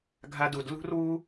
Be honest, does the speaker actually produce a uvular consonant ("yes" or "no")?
no